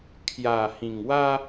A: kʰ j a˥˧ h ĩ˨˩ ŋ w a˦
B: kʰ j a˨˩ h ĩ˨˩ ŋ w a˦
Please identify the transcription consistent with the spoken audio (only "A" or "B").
B